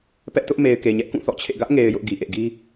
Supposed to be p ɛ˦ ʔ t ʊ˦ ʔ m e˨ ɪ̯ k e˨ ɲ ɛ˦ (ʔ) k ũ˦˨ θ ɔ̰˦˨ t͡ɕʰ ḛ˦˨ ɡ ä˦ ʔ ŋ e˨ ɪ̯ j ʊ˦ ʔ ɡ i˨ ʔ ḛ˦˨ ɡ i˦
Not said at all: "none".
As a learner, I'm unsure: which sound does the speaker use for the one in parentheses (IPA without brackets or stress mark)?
ʔ